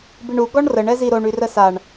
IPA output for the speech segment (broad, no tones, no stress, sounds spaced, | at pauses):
b i ɳ u ɡ ɔ ɳ r ə ɳ ɛ z i ɾ o ɳ y r ə s a ɳ